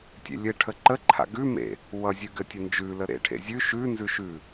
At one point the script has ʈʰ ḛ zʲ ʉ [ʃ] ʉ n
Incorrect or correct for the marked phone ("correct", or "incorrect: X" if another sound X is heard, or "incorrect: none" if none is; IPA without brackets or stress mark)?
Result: correct